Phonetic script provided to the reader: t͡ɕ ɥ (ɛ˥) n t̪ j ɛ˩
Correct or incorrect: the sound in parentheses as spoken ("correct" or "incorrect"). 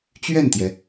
incorrect